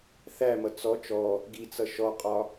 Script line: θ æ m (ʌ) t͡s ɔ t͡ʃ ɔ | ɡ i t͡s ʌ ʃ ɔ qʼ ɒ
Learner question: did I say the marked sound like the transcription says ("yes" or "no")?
yes